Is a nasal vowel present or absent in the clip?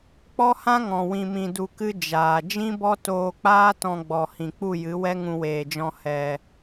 present